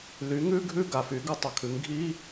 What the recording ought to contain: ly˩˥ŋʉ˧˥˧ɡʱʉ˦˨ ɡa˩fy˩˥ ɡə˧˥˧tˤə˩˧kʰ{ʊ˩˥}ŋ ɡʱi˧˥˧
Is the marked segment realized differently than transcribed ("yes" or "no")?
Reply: yes